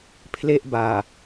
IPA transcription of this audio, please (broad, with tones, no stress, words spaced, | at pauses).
pʰle˥˩ʔbaː˨˩